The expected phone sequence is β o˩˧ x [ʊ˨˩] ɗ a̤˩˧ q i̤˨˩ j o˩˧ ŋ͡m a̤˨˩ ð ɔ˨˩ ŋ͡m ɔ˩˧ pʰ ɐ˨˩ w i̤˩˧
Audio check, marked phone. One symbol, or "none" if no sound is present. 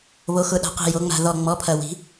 ʊ˨˩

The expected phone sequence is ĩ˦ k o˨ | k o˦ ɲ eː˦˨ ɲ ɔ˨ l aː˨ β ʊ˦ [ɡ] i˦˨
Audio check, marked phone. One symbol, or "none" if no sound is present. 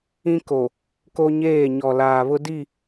d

